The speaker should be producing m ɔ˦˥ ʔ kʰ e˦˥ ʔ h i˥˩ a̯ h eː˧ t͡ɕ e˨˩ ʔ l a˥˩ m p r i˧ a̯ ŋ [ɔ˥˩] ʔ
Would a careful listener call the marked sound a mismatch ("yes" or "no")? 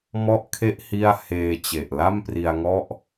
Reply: no